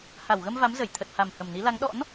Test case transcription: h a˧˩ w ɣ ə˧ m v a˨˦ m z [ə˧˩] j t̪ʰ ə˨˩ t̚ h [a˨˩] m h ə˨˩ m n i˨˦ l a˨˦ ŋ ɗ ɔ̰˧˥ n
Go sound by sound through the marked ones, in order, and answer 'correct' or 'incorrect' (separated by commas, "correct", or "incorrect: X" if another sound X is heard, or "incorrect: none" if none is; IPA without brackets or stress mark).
correct, correct